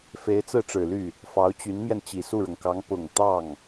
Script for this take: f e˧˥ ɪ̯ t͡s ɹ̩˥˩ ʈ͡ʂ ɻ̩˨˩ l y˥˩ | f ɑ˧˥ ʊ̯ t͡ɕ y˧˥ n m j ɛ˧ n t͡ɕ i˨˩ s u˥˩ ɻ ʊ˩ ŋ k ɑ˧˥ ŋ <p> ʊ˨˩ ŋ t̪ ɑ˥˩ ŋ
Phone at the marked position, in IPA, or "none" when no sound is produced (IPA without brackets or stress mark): p